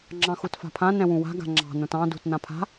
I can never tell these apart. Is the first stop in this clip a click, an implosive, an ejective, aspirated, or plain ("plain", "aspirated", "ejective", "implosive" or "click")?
click